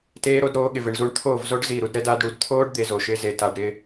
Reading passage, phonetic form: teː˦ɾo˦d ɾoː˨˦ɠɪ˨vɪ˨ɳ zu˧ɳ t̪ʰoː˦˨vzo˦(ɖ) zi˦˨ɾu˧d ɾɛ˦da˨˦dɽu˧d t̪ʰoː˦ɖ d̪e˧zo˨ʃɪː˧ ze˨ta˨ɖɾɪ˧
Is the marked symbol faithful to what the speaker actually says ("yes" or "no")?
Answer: yes